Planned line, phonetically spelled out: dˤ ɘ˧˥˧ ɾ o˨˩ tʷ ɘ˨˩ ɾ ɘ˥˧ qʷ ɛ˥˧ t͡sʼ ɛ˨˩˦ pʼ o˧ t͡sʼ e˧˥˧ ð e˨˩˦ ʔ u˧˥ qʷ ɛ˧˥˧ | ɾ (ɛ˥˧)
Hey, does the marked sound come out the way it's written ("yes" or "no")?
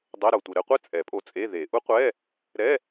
no